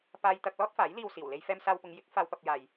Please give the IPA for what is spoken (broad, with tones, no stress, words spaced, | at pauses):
paː˥jt̪ɐ˥k̚ lɔː˥t̚faː˨˥jliː˧w siː˨˩wle˥jfɛː˥m saː˧wpʊ˨˧ŋjɪ˨˥k̚ faː˥wpɐ˥p̚jaː˧j